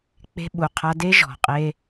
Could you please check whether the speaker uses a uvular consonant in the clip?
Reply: yes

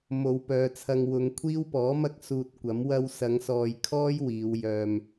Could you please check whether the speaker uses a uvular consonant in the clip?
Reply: no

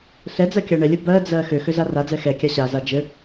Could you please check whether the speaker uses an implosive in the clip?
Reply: no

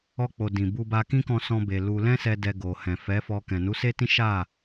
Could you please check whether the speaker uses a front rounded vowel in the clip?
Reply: no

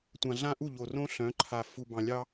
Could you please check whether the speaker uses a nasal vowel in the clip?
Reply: yes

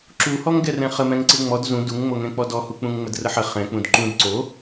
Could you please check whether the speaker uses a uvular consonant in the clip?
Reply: yes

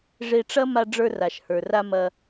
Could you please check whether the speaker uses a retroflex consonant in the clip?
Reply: yes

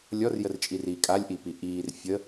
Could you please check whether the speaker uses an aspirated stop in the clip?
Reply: no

